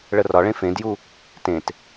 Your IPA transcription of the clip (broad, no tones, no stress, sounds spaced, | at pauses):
ɭ ə r ɒ ɭ ẽ f ẽ d j u | t ẽ t